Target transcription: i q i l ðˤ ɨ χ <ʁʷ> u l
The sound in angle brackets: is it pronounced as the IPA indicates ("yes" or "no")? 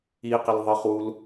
no